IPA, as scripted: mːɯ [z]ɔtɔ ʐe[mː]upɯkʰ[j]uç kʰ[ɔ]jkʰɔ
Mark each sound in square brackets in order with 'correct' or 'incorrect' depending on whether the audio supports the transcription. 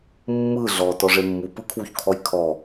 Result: incorrect: ɮ, correct, incorrect: w, correct

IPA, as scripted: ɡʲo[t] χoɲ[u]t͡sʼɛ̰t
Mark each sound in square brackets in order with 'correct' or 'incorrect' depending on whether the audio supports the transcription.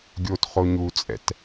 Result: correct, correct

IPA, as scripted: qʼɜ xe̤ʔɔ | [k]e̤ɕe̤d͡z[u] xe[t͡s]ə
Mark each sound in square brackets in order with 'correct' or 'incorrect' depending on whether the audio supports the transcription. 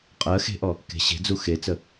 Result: correct, correct, correct

